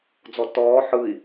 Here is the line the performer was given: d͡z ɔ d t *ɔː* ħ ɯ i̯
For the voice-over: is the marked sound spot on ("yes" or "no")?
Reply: yes